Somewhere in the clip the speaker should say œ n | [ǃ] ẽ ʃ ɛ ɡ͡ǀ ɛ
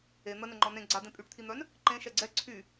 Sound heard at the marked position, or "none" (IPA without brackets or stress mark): ǃ